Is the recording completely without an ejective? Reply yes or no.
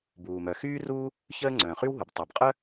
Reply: no